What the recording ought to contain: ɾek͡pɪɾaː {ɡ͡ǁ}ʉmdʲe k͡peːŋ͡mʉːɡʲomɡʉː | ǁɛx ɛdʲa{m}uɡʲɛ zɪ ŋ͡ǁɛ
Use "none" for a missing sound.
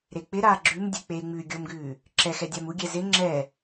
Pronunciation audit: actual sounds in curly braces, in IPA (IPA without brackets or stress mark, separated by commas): ɡ͡ǁ, m